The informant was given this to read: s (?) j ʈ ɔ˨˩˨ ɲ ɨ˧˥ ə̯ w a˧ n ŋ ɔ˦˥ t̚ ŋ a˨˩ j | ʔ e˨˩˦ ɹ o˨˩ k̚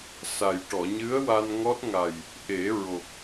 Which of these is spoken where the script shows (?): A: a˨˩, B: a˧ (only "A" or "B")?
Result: A